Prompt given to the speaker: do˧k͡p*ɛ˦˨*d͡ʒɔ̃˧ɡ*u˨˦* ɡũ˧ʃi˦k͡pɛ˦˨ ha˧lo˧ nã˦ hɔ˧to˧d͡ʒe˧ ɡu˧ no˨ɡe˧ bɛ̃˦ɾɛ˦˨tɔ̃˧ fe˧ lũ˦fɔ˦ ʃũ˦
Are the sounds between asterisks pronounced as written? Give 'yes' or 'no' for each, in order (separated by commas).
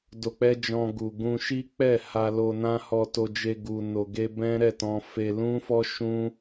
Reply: no, no